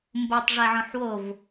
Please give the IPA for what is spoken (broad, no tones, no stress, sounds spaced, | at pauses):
m b o tˤ ʐ ɛ ʕ ɔ̃ ħ w o v